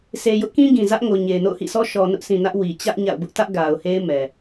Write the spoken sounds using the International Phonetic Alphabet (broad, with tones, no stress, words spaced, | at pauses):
se˨jʊ˦ʔkĩ˦ ɡĩ˨zä˦ʔŋo˨ ɲe˨ɪ̯no̰˦˨ʊ̯hḭ˦˨sʰɔ˦ ʃɔ˨nʊ˦ʔsĩ˨ nä˦ʔwi˨ t͡ɕä˦ʔ ɲa̰˦˨ʊ̯bʊ˦ʔ tä˦ʔ ɡa˨ʊ̯he˦ɪ̯ mɛ˨